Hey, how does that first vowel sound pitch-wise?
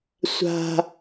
high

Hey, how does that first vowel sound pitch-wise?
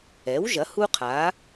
rising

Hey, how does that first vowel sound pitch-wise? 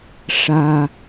high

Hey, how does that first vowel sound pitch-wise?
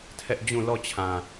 high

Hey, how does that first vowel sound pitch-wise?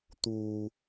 low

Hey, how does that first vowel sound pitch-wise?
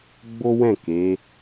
high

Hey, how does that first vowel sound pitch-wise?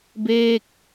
falling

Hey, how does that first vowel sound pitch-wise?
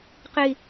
low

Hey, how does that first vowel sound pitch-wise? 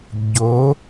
rising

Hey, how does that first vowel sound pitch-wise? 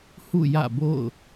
falling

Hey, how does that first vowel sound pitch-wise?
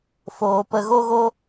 low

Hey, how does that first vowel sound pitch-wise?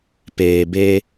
low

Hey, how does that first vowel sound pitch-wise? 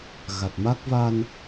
low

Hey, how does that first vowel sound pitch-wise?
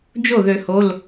falling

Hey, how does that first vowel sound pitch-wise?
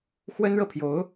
high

